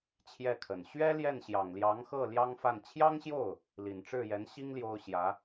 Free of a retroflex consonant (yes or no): no